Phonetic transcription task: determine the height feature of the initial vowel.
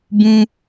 high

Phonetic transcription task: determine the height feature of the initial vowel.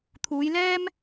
high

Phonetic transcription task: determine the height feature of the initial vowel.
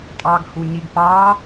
low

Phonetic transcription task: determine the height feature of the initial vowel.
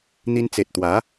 high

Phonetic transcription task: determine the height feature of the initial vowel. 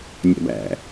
low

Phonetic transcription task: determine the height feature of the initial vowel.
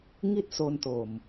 high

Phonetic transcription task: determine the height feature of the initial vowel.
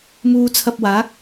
high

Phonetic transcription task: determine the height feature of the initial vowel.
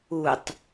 high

